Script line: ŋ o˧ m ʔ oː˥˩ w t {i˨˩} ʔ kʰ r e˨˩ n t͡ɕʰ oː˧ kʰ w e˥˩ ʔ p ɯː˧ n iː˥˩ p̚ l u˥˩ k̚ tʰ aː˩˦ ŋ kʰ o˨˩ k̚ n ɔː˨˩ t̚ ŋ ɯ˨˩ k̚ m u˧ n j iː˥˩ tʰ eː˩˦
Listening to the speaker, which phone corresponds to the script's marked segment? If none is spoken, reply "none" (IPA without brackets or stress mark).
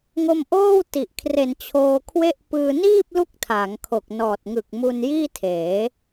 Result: i˨˩